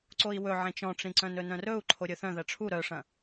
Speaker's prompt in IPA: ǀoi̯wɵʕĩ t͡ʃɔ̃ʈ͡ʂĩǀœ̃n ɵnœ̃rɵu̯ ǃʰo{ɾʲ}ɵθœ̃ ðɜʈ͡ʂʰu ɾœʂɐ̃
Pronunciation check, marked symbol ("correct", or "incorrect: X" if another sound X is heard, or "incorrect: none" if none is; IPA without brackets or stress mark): correct